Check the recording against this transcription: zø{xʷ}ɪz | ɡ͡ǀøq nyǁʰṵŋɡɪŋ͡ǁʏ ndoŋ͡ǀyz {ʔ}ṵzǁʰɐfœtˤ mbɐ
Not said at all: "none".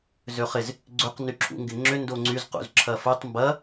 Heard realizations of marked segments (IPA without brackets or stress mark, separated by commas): χ, q